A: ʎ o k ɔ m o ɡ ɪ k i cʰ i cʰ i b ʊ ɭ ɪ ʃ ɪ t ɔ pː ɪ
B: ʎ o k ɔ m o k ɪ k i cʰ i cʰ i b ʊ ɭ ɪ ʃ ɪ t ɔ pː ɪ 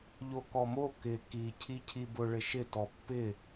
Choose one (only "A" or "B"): B